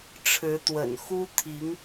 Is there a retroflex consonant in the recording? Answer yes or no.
yes